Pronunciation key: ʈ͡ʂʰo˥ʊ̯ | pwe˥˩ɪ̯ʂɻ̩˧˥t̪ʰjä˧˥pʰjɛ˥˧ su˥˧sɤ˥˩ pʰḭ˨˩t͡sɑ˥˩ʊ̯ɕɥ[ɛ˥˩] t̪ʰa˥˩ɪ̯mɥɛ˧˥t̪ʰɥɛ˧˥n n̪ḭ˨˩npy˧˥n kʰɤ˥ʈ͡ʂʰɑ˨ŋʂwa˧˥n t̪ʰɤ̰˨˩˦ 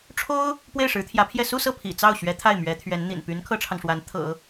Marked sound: incorrect: ɛ˧˥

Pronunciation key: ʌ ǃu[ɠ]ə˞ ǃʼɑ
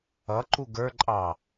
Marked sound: incorrect: ɡ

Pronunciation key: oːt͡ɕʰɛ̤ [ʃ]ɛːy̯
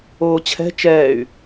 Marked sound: incorrect: t͡ʃ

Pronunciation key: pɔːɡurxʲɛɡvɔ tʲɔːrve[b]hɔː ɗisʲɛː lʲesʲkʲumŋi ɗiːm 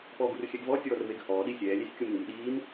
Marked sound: incorrect: ɡ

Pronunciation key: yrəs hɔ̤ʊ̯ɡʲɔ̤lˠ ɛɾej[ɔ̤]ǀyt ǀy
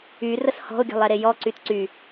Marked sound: incorrect: ɔ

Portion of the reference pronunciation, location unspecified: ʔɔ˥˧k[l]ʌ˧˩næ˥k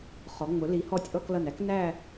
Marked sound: correct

